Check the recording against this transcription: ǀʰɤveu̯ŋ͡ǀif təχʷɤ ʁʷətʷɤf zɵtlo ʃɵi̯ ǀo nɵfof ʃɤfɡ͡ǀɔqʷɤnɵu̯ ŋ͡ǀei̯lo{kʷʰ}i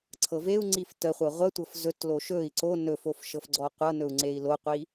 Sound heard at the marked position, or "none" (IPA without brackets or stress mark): qʷ